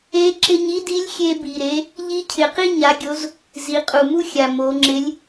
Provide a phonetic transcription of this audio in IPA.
e˧˥ ǁ ɪ˧ ɲ i˥ d i˧˥ lʲ xʲ e˧ b i˩ ɾ e˩˧ | ʎ i˧ cʰ ɪ˩ q i˥ ɲ a˩˧ ɡʲ o˩˧ z | z i˩˧ qʼ u˩ m u˥ xʲ a˩ m o˩˧ ŋ͡ǁ ɪ˧˥ lʲ

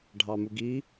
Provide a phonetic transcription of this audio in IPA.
ɖʱ ɑ m u ɡ i

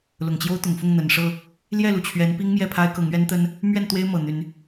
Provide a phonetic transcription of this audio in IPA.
l ʊ˨˩ ŋ t͡ɕ j o˦ ʊ̯ t̪ ʊ˨˩ ŋ f ʊ˥˨ ŋ n̪ ə˨˩ n ʂ ɤ˥˨ | l j ɛ˥˨ l u˩ t͡ɕʰ ɥ ɛ˨˦ n p i˦ ŋ m j ɛ˥˨ pʰ a˦ ɪ̯ k ɤ˨˦ ŋ ɥ ɛ˦ n t̪ ə˦ n | m ɥ ɛ˥˨ n t̪ w e˦ ɪ̯ m ɤ˨˩ n̪ y˨˦ n

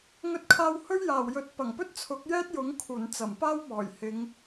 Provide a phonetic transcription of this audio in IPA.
ŋ ɵ˧ t̚ kʰ aː˧ w h ɵ˥ ɥ j aː˨˩ w j ɵ˨˥ t̚ p ɐ˨˩ ŋ p ɵ˥ t̚ t͡sʰ ʊ˨˥ k̚ j ɛː˥ t̚ j ʊ˨˥ ŋ kʰ uː˨˩ n t͡s ɐ˨˩ m p aː˥ w m ɔː˨˩ j h ɪ˨˧ ŋ

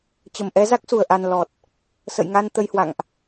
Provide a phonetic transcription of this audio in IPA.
t͡ɕ ə˧˩ m ʔ ɛ˨˦ z a˦˥ k̚ s u˧˩ ə̯ ʔ a˨˩ n l ɔ˨˩ t̚ | s ə̰˧˨ j ŋ a˧ n t̪ ə˧ j h w a̰˧˨ ŋ ʔ

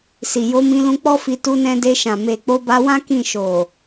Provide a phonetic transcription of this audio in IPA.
s i˨ j o˧ m ĩ˧ l ũ˧ k͡p ɔ˦ f i˧ t u˧ n ɛ̃˧ d e˧ ʃ ã˨ m e˨ k͡p o˧ b a˧ w ã˦ k ĩ˦˨ ʃ o˨

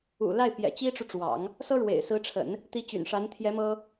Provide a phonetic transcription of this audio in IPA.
ṵ˨˩ l a˥˩ ɪ̯ p j ɛ̰˨˩ t͡ɕ i˥ ʈ͡ʂ u˨ ʈ͡ʂ w ɑ̰˨˩˦ ŋ | s ɤ˥ ɻ w ḛ˨˩ ɪ̯ s ɹ̩˧˥ ʈ͡ʂʰ ə̰˨˩˦ n | t̪ i˧˥ t͡ɕ y̰˨˩ n ʂ a˧˥ n t̪ʰ j ɛ˧˥ m ɤ˥

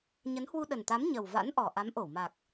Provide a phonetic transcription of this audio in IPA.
ɲ ə˨˦ n h w u˧ ɗ ə˨˩ n t̪ a˨˦ m ɲ ə˨˩ w v a̰˧˥ n ʔ ɔ˨˩ ʔ a˨˦ m ʔ o˧˩ w m a˨˩ k̚

